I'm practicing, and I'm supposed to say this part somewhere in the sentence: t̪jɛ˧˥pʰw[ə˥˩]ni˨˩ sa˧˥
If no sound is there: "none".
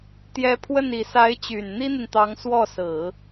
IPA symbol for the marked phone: ə˥˩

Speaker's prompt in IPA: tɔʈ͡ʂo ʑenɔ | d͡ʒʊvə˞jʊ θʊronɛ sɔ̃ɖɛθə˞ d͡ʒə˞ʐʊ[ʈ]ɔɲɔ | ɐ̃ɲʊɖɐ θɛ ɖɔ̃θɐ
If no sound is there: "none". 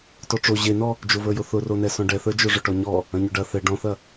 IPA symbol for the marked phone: ʈ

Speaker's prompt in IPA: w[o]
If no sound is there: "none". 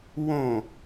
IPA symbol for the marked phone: õ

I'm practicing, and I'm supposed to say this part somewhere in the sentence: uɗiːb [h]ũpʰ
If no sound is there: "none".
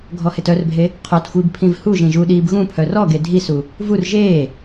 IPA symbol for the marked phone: ɣ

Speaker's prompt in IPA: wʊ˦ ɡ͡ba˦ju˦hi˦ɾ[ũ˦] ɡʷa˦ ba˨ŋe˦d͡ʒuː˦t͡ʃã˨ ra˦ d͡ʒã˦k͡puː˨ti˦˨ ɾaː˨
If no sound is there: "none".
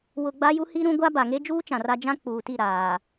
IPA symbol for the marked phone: ũ˦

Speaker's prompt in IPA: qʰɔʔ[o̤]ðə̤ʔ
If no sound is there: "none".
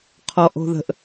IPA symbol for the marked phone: o̤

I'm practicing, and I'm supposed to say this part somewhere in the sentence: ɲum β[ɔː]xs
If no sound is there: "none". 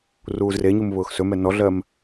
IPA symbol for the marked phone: ʊː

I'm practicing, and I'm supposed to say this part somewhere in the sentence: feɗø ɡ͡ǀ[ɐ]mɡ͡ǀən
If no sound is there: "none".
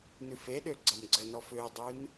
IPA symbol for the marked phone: ɐ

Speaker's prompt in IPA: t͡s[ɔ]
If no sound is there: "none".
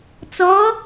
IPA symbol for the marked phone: ɔ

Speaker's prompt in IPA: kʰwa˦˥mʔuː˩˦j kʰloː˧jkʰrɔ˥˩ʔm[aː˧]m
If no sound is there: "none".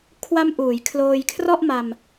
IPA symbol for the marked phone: a˧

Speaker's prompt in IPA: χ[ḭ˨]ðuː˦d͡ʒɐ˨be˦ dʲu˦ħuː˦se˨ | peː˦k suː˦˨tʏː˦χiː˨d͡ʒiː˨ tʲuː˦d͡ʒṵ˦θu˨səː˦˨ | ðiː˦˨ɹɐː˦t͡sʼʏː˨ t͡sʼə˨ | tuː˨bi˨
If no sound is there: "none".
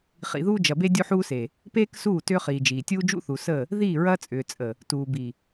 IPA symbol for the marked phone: ḭ˨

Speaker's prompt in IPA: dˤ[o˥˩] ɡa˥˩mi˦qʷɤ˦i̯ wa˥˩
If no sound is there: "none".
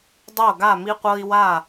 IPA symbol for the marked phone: o˥˩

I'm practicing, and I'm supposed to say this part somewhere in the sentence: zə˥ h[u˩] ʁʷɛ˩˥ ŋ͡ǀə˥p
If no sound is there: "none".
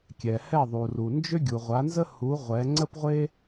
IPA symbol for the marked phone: u˩˥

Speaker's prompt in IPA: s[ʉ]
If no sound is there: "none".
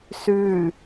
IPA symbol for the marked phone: ʉ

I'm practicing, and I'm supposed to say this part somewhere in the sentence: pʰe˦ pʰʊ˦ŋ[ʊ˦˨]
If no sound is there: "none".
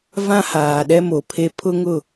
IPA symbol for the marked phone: ʊ˦˨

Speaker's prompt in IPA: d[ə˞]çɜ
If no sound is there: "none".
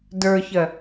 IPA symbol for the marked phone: ə˞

